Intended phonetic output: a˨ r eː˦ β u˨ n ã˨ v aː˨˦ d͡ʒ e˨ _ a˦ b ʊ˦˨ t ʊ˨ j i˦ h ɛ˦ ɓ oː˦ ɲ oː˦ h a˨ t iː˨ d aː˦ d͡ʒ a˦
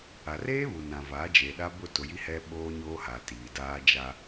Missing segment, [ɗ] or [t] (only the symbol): ɗ